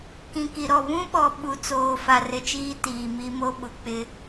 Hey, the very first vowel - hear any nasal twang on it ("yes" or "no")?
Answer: yes